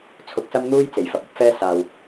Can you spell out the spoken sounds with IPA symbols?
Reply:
t͡sʰʊ˧k̚sɐ˥mn̪uː˥jt͡se˨˩j fɐ˨˥p̚ɐ˥p̚fɛː˥ saː˨w

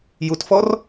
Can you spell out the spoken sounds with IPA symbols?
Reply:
jutfɔr

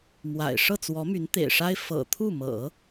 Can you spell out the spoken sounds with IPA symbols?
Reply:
mwa̰˨˩ɪ̯ ʂɤ˥˩t͡swɔ˧˥my˧˥n t̪ḛ˨˩ɪ̯ʂa˥ɪ̯ fɤ̰˨˩t̪ʰu˥˩mɤ̰˨˩˦

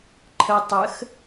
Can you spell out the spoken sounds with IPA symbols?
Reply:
ǃʰə tˤəx

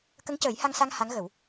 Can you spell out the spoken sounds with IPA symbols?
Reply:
kə˧˥ŋcəː˨˩˦jha˧ŋsa˧ŋ ha˧˥ŋɣə˨˩˦w

